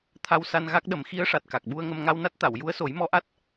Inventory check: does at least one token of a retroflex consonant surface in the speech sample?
yes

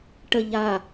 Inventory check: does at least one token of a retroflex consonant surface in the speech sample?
yes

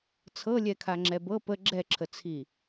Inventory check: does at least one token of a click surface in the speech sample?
yes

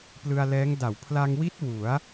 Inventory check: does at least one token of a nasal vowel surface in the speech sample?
no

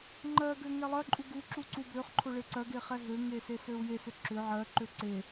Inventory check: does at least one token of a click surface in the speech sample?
yes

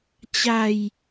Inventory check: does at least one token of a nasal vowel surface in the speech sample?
no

